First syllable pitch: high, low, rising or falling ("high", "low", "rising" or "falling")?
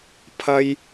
low